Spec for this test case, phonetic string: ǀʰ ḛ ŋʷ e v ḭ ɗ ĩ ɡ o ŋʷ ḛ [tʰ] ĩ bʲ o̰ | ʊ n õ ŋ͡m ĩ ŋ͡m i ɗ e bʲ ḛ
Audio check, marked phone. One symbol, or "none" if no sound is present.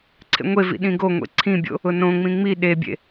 ǀʰ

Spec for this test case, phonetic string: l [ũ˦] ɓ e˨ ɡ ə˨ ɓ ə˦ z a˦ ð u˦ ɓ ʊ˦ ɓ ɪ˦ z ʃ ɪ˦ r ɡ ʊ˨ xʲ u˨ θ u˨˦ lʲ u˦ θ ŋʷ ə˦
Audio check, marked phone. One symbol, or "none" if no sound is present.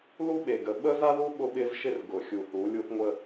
u˦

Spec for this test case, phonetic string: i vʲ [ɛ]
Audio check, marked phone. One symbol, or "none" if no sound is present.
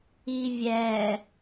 ɛ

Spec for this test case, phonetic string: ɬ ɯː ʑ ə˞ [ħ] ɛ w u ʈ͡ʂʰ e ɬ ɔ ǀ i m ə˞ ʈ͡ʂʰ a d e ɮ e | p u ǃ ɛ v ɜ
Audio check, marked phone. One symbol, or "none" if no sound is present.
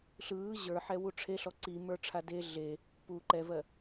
ħ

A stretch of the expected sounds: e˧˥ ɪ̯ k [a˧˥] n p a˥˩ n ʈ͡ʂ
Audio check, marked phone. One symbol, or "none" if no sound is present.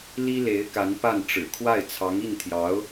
a˧˥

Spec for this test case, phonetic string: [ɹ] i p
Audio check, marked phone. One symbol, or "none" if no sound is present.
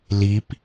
l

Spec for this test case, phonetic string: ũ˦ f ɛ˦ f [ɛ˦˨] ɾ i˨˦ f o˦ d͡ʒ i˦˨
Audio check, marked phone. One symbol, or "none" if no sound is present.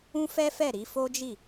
ɛ˦˨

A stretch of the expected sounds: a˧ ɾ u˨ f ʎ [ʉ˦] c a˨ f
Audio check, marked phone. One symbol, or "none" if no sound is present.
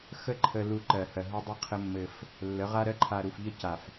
ə˦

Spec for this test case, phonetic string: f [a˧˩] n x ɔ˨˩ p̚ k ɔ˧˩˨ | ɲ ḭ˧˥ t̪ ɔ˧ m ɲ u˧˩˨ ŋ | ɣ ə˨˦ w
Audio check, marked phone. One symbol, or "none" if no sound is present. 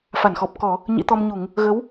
a˧˩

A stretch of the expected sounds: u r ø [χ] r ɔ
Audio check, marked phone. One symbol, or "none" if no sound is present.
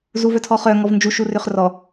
χ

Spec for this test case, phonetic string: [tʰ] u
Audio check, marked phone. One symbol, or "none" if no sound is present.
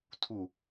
tʰ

